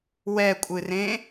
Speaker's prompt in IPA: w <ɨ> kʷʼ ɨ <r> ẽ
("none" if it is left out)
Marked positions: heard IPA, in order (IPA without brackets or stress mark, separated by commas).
ɛ, r